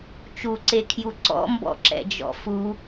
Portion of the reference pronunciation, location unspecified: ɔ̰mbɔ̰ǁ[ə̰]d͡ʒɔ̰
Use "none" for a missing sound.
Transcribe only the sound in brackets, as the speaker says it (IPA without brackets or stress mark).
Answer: ɛ̰